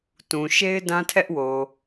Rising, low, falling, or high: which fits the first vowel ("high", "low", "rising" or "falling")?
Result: low